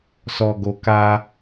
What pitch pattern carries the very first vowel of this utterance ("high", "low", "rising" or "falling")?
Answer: low